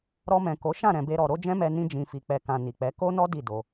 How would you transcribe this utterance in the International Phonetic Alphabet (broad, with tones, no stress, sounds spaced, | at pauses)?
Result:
ɾ ɔ˧ m ɛ̃˨ k o˨˦ ʃ ã˦˨ ɾ ɛ̃˧ b e˦ ɾ ɔ˧ ɾ o˦ d͡ʒ ɛ̃˦ m ɛ˧ n ĩ˧ d͡ʒ ĩ˨ f i˨ k͡p ɛ˨ k ã˨ n i˨ k͡p ɛ˨˦ k o˦ n ɔ˦ d i˦˨ d o˧